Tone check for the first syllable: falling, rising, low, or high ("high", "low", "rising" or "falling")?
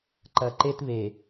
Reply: low